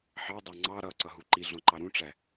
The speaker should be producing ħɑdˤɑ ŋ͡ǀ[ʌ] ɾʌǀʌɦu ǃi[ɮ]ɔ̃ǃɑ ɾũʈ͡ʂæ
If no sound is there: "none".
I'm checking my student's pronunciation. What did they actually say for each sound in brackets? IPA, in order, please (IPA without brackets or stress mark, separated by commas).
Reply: ɑ, ɮ